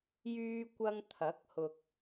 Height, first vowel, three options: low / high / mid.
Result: high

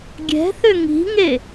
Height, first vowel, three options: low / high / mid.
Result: mid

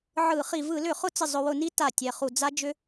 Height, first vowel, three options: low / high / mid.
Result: high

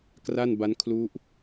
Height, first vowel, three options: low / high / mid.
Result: low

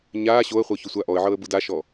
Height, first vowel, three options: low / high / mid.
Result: low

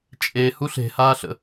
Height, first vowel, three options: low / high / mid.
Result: mid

